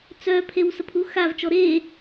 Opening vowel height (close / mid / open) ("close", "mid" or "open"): mid